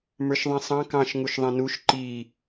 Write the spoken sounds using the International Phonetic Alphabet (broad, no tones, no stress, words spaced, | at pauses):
mə˞ʃðˤĩsˤɑ̃ kɑ̃ʃ ŋuʃðˤɛ̃nuʃ ǃi